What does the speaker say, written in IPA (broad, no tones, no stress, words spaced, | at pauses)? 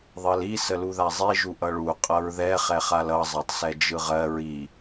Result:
ðˤɜli səluðazˤi ʒuʔʌɭu qʼʌɹðɛ χɛχalʌ zˤatˤsɛd͡ʒɯʁɜ ɹi